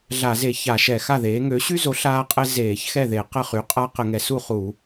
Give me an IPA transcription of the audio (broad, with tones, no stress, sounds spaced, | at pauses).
ɮ a˧˩˧ z e˧˩˧ ç a˧˩˧ ʃ ɛ˧˩˧ x a˥˩ ð eː˩˥ ŋ ø˩˥ ɕ y˦ z o˩˥ ɬ aː˦ qʼ ɛ˦ z eː˧˩˧ ç x ɛ˥˩ ð e˧˩˧ q ə˥˩ χ y˩˥ qʼ a˦ q ə˧˩˧ ŋ ɛ˩˥ s u˥˩ χ u˧˩˧